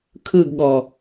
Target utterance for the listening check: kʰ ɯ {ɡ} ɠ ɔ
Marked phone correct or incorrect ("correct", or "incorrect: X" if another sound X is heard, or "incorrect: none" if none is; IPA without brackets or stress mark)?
correct